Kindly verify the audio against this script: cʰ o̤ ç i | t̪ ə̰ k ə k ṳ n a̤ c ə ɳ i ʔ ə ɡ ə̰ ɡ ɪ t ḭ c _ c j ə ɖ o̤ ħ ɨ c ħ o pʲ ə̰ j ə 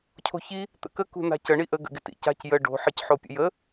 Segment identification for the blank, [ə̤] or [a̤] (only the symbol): a̤